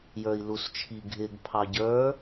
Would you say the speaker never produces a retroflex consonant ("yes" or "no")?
yes